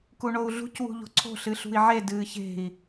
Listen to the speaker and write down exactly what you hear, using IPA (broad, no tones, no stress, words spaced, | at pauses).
kuɳou̯ɮṳc wṳʎo̤ǀʰo̤ ɬɨɬṳi̯ʕe dɨːçe̤i̯